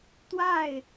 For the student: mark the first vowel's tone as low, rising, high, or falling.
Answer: falling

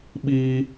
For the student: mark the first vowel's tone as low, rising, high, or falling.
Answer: high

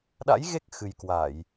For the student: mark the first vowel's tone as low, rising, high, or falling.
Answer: rising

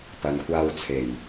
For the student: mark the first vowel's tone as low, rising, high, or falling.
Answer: low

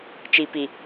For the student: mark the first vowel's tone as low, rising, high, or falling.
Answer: low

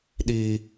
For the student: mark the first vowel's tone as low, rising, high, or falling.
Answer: high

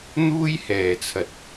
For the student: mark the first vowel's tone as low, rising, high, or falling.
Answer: high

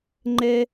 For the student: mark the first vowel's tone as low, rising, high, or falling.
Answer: high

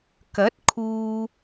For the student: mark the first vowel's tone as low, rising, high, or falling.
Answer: rising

